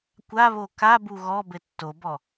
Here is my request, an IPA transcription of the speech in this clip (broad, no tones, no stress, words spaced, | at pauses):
kʷaβo kabu ɣɔbɘ tːobɔ